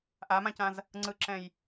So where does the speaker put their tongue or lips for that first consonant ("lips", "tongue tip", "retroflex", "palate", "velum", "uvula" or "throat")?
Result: throat